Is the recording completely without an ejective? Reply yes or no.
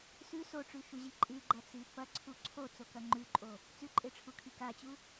no